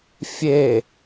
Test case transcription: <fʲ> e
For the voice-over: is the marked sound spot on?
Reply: yes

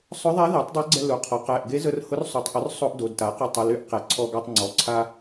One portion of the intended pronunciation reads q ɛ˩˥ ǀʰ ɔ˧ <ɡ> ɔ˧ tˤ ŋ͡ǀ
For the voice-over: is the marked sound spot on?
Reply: yes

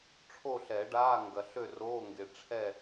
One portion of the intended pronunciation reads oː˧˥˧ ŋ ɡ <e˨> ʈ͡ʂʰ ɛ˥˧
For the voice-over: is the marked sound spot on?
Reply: yes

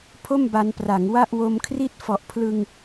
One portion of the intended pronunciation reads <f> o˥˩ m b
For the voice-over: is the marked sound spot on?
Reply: no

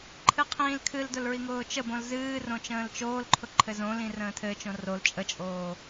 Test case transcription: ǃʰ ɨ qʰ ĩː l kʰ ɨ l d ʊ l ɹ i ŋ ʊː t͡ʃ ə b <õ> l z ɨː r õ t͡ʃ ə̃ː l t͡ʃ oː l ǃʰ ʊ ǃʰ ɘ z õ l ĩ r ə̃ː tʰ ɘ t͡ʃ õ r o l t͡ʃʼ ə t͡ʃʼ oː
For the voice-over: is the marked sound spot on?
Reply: yes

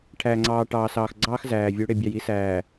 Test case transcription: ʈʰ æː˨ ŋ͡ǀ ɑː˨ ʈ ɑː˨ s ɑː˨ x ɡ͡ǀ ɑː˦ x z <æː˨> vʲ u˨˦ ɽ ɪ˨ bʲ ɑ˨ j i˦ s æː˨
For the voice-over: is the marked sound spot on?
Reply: yes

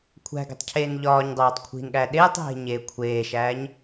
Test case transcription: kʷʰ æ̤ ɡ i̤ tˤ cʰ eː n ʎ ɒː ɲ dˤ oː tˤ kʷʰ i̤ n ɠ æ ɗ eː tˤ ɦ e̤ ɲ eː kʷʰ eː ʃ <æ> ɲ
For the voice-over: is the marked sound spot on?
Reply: no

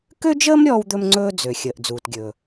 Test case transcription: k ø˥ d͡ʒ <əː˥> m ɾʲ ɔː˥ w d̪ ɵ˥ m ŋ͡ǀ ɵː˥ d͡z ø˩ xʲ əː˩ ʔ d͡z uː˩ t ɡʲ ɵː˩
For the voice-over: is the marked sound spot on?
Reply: yes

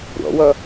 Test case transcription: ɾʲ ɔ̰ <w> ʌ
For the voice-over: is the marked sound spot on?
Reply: yes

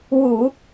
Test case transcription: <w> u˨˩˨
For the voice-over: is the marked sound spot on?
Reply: yes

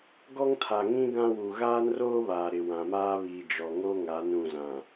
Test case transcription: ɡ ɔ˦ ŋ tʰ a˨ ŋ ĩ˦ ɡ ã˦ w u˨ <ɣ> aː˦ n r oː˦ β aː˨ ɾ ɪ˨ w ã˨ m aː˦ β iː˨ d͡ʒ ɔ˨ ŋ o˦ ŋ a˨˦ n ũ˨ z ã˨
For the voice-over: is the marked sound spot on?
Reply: yes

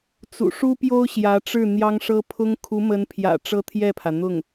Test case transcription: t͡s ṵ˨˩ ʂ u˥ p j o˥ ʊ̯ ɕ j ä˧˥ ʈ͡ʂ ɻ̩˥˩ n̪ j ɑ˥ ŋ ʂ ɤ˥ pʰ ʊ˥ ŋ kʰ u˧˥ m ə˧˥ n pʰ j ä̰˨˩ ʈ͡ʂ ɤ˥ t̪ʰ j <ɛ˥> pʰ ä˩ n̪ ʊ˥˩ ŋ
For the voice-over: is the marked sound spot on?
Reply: no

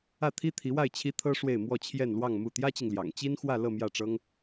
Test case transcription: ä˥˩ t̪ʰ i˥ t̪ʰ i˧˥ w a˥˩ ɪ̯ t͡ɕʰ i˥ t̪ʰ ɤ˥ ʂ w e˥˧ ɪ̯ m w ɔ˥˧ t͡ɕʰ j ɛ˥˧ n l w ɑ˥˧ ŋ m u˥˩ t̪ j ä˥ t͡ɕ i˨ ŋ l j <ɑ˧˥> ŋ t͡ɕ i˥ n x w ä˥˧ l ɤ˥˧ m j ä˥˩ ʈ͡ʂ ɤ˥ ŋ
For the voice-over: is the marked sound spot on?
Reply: no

